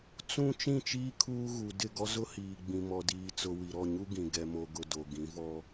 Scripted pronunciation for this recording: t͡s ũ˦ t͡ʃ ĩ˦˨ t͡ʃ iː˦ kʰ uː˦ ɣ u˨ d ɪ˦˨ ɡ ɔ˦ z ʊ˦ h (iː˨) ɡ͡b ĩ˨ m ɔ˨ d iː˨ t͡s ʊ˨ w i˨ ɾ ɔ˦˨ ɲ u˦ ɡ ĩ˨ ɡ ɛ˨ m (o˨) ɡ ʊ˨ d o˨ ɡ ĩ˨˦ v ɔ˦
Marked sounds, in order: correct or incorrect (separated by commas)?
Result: correct, correct